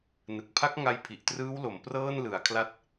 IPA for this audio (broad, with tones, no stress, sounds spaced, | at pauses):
n ɯ˨˩ k̚ pʰ a˦˥ k̚ ŋ a˧ j pʰ i˨˩ ʔ t r ɯː˦˥ w l o˩˦ m p r ɤː˥˩ n l ɯ˩˦ a̯ kʰ l a˦˥ t̚